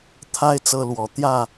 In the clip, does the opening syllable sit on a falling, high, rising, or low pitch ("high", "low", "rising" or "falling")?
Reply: high